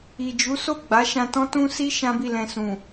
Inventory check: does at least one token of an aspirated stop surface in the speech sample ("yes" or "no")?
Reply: no